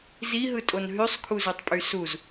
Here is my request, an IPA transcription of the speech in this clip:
ziɦɯtʼon ɦysˤkʰuzutˤpʼy suz

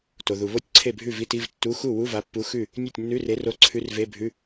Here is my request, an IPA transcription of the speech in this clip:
to˩ ðu˩ βo˥˩tʲǀʰe˥˩bʱʉ˥˩ vi˧˥˧ti˧˥˧vtːu˧˥˧ xu˥˩ wu˧˥˧va˨˥pːu˨˥ xʉ˥˩ | nʲe˥˩tʲnːʉ˧˥˧re˨˥ro˧˥˧ ǀʰʉ˧˥˧rve˧˥˧bʱʉ˧˥˧

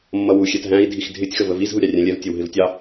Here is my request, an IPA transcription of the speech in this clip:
mːʌwu xʲɛtɦæ̃i̯ dʱixdʱɪtʲ xəvəviz ɦuɾʲɑrʲæ̃lʲɛv tʲɛwɦɪvtʲɑ

